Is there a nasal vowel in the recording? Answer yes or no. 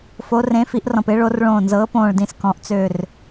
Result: yes